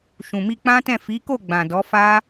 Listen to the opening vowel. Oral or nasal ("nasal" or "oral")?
nasal